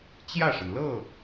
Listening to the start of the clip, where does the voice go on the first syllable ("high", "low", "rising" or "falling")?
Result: falling